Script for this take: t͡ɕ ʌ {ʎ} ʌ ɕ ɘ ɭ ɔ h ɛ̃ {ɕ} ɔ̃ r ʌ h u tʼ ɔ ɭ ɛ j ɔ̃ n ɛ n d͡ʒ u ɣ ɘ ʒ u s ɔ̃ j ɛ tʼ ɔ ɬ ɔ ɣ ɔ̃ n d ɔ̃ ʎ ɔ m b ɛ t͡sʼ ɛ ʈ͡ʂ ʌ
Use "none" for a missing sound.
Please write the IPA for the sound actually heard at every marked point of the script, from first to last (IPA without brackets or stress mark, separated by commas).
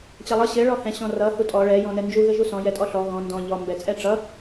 lˠ, ɕ